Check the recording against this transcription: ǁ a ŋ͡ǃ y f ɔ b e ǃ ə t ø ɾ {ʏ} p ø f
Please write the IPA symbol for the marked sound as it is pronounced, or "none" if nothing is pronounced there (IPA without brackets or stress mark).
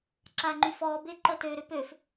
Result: ʏ